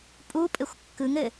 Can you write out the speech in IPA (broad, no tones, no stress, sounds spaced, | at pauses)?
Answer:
pʼ u pʼ ɘ xʷ kː ɯ ŋ ɘ